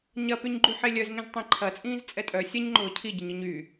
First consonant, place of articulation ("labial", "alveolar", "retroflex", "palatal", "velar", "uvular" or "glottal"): palatal